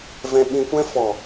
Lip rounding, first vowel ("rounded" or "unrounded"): unrounded